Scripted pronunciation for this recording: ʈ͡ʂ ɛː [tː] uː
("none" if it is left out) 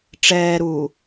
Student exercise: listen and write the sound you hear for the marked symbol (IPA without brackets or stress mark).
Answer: ɾ